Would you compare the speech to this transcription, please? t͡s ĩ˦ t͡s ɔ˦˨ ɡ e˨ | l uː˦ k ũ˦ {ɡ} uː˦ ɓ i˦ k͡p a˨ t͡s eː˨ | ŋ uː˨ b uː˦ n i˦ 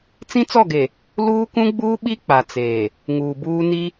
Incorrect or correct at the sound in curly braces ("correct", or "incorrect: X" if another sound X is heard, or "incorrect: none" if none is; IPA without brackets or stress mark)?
incorrect: ɡ͡b